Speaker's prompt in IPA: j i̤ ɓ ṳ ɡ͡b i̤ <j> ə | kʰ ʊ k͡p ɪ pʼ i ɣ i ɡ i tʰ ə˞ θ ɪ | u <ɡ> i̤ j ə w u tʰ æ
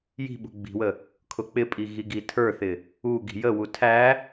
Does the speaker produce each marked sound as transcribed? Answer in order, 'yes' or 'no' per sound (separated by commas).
no, yes